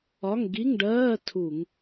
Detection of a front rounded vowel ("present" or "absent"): absent